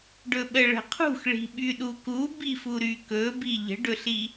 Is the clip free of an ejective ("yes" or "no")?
yes